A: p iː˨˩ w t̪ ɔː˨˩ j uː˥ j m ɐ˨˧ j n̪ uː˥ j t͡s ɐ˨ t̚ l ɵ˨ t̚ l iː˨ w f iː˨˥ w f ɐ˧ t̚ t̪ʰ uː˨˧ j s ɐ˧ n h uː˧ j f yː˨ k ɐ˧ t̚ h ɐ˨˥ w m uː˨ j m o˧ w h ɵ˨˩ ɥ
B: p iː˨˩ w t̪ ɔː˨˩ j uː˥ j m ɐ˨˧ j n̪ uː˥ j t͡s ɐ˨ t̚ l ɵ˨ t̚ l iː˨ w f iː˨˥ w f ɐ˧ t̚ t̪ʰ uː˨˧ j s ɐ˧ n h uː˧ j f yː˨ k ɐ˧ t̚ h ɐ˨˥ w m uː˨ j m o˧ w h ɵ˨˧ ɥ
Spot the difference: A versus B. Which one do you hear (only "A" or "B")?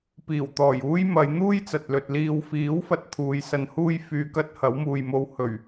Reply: A